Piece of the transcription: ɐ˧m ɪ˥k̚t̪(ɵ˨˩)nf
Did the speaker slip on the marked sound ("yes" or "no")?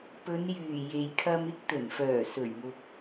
no